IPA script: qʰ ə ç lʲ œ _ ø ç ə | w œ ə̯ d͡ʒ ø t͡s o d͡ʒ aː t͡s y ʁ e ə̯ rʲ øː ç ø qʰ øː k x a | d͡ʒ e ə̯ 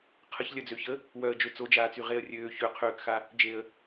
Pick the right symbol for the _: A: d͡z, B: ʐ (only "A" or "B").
A